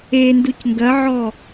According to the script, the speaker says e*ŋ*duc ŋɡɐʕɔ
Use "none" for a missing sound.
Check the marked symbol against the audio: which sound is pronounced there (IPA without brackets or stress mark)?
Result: n